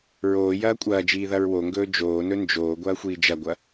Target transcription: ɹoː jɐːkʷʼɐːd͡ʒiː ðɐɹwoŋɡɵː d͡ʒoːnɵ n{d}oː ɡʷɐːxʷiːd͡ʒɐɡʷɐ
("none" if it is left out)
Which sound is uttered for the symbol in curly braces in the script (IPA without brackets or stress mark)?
d͡ʒ